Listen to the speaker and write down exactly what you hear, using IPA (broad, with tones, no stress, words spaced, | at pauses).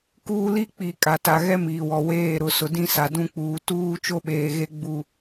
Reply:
kuː˦li˦k͡pi˨ kʼa˨ta˨ɣɛ˦ miː˨wɔ˨ weː˦˨ɾʊ˨˦sʊ˨ dĩ˦sa˨ dũ˦k͡puː˨ tuː˦ t͡ʃo˦ɓeː˨ɣe˦ ɡ͡bu˦